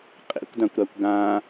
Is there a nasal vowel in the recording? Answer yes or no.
yes